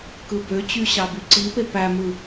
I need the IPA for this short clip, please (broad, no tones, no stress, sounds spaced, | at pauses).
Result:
k ɯ b ø t͡ɕ y ɕ ɑ b y ǀ i p e p æ m ɯ